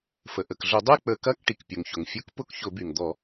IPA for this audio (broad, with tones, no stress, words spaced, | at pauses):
fə˩ʔə˩kɮʊ˧˩˧ dˤy˥˨k͡pə˧˩˧kɐ˧˥˧k ʈi˩kpʲʊ˩ŋçʊ˩ŋ fʲʊ˧˥˧kpʊ˥˨k çʊ˧˩˧by˩ŋd̪ɔ˧˩˧